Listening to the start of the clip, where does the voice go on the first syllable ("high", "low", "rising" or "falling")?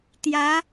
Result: rising